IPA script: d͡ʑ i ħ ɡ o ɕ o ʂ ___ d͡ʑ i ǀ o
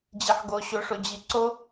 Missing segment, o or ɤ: o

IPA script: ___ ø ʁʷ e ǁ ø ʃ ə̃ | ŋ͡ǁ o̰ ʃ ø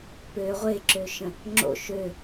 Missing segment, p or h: p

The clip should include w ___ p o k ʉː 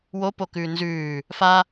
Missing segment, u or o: o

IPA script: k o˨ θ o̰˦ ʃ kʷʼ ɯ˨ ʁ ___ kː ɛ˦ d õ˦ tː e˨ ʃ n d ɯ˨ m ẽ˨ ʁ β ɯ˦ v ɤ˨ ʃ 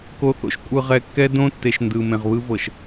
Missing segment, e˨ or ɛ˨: ɛ˨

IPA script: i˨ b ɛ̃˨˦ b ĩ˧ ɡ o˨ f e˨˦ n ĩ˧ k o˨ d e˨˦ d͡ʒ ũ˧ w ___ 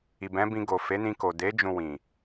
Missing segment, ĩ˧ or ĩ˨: ĩ˨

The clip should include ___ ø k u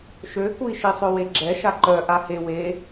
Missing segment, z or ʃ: ʃ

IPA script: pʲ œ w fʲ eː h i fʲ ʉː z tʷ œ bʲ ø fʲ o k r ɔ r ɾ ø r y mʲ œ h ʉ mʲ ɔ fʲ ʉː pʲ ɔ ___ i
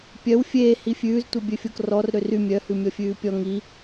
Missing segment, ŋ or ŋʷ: ŋ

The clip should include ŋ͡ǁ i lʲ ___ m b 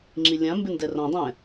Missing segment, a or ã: ã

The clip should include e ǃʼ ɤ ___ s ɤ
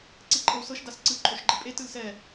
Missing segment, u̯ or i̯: u̯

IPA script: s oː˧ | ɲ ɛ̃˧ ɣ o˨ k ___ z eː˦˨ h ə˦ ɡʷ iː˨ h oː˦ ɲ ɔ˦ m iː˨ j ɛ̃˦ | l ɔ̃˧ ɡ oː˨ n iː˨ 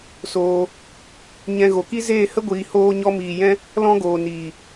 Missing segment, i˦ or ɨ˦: i˦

